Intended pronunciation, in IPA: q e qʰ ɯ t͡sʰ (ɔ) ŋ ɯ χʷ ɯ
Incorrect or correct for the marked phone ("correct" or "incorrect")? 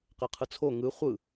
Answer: incorrect